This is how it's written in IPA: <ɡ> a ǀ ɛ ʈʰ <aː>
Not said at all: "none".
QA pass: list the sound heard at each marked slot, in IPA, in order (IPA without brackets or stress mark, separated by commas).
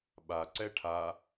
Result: ɓ, a